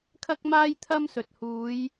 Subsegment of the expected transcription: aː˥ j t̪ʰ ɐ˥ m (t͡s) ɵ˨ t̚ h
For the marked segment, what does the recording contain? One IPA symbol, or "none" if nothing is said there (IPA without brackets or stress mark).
s